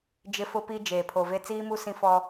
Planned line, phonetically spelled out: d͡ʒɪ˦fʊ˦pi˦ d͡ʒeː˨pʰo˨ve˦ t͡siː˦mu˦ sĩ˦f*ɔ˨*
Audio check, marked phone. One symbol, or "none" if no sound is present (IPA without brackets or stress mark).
ɔ˦